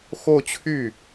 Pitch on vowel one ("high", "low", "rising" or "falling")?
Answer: falling